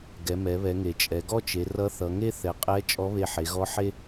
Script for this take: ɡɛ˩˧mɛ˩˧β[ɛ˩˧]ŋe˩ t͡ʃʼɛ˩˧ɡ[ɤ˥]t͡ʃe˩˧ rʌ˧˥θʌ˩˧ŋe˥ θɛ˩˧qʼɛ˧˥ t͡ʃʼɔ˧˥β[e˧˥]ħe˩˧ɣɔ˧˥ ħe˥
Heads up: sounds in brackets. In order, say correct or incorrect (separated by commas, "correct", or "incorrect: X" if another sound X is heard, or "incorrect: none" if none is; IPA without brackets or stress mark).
correct, incorrect: ɔ˥, incorrect: e˧